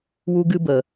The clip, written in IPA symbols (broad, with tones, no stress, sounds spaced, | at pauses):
w u˦ ɡ ɨ˦ b ə˨